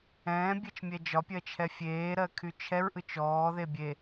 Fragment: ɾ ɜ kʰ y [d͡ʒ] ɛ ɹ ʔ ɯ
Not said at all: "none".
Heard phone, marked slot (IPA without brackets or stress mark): t͡ʃʰ